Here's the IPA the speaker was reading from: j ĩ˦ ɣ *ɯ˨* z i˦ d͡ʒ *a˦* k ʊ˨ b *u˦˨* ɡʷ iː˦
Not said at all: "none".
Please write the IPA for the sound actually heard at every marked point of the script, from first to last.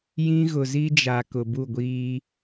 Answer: ʊ˨, a˨, u˦˨

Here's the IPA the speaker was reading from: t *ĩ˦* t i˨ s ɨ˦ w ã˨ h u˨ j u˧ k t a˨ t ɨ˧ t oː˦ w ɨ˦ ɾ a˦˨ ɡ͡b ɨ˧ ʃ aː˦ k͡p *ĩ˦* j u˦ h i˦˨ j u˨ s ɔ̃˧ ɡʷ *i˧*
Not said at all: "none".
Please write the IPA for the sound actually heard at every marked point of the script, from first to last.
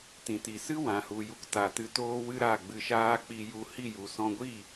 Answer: ĩ˨, i˦, i˦˨

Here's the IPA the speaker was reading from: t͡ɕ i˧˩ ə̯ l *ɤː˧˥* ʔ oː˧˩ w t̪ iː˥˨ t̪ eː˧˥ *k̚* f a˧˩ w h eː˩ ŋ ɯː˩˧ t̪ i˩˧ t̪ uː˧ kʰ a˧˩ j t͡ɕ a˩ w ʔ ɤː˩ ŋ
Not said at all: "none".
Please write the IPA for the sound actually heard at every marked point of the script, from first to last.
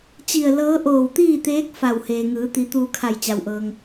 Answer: ɤː˧˥, k̚

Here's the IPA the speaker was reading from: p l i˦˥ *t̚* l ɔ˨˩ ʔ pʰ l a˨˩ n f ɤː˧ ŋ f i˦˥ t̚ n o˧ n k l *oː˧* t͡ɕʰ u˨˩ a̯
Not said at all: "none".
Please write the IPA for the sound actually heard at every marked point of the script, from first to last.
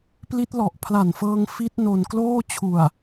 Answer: t̚, oː˥˩

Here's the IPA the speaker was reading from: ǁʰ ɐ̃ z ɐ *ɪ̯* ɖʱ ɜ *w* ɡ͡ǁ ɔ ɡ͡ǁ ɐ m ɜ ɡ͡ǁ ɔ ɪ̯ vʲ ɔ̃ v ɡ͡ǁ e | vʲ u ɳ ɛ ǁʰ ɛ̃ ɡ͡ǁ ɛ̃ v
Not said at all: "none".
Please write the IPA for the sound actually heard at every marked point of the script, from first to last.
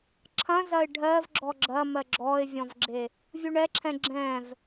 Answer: ɪ̯, v

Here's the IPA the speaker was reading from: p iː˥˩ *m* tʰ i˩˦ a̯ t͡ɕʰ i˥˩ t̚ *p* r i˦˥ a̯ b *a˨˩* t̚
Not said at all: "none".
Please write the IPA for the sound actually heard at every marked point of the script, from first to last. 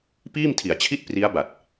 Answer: m, p, a˨˩

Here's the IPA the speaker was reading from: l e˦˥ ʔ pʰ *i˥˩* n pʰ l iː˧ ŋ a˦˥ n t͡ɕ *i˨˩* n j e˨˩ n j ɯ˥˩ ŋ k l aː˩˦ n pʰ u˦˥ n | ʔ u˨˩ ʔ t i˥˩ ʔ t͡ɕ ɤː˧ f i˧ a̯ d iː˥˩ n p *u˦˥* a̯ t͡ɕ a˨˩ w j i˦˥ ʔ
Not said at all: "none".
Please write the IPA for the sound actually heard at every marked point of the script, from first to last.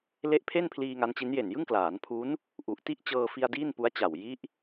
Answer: e˥˩, i˦˥, u˦˥

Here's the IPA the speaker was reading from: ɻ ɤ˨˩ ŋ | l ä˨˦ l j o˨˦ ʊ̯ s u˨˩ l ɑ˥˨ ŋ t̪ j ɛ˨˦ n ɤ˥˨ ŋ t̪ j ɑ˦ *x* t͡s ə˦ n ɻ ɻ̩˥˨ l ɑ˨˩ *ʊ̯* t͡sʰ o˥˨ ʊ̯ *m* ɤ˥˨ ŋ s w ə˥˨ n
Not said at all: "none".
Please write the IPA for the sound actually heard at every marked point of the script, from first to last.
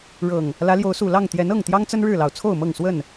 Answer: ŋ, ʊ̯, m

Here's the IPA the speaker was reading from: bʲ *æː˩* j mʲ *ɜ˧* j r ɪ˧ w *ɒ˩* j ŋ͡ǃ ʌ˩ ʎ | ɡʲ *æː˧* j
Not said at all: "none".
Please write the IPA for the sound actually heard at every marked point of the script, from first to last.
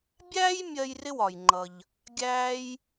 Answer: æː˥, ɜ˧, ɒ˩, æː˧

